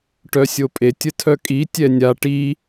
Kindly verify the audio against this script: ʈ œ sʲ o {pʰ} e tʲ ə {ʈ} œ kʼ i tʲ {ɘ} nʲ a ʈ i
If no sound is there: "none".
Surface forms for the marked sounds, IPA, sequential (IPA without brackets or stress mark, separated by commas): pʼ, tʰ, ɛ